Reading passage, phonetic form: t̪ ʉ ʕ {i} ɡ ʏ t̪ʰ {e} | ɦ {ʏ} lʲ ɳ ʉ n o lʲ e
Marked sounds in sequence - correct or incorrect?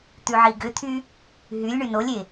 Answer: correct, incorrect: y, incorrect: y

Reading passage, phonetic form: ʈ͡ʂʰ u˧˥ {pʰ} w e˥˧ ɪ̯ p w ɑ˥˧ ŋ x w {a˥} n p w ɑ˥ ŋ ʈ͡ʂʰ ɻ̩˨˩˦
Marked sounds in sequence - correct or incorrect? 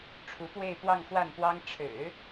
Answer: incorrect: p, incorrect: a˥˩

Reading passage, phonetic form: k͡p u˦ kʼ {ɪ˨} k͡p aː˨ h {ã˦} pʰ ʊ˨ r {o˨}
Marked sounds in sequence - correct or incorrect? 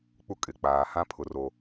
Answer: correct, correct, correct

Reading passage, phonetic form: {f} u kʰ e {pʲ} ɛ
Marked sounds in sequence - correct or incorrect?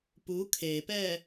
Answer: incorrect: p, incorrect: p

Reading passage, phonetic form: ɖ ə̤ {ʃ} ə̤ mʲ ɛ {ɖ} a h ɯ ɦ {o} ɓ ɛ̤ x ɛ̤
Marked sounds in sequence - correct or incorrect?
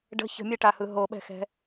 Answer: incorrect: ç, incorrect: ʈ, correct

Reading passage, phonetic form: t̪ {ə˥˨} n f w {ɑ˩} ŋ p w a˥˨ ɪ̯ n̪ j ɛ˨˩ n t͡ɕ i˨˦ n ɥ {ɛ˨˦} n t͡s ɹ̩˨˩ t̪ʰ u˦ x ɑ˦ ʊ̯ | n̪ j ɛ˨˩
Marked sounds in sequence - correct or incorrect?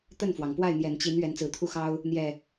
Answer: correct, correct, correct

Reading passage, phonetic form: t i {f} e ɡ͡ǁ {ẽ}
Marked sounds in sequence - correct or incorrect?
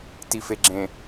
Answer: correct, correct

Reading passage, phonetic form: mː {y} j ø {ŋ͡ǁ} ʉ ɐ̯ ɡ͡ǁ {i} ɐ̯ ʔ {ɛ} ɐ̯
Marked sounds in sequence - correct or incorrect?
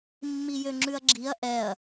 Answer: incorrect: i, correct, correct, correct

